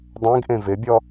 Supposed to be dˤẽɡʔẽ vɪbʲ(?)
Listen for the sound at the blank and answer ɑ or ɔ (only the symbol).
ɔ